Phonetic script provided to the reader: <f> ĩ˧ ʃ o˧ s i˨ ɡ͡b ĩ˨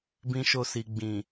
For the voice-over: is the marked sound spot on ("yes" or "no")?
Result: no